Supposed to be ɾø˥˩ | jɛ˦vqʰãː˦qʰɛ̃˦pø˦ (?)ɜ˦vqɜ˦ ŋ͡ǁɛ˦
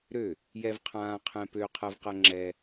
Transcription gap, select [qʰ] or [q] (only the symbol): qʰ